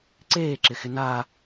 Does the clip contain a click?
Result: yes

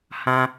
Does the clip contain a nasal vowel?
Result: yes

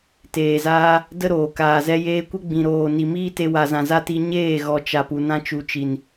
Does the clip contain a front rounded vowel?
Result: no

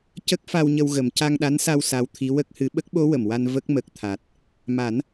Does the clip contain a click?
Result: no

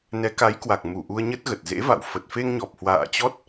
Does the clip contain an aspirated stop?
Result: no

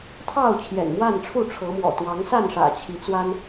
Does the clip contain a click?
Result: no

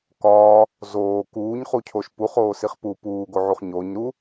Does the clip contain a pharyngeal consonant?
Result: yes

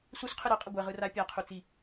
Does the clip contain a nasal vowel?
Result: no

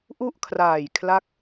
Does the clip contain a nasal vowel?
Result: no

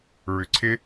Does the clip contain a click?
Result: yes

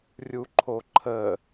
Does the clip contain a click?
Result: yes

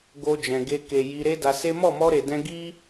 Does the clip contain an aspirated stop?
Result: no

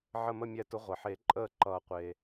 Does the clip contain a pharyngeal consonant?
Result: yes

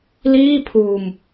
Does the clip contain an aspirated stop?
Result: yes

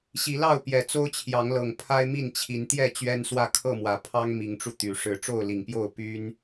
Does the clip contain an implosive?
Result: no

